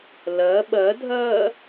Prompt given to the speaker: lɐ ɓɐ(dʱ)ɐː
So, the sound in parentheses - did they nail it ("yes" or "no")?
yes